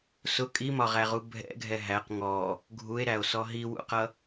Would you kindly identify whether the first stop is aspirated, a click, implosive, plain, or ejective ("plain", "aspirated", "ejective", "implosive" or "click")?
ejective